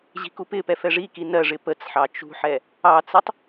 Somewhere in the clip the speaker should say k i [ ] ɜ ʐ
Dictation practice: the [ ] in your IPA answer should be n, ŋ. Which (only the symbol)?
n